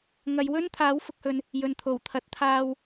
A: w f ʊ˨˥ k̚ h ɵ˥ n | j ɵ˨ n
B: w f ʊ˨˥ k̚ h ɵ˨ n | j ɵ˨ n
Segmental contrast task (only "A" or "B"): B